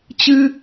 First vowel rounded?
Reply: no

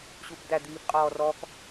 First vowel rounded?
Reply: yes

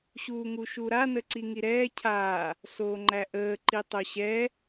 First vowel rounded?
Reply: yes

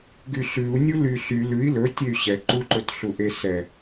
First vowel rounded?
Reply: yes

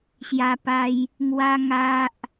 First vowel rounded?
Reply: no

